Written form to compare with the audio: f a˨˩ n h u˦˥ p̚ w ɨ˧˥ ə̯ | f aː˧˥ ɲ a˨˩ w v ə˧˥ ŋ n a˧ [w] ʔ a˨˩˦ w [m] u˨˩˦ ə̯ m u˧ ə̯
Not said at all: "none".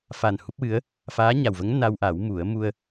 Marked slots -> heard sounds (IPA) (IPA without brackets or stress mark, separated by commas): w, m